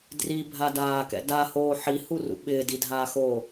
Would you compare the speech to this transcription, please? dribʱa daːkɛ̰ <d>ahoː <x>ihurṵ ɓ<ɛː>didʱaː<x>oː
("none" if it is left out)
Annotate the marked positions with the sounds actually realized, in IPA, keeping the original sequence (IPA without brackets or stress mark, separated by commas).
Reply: d, ħ, ɪː, x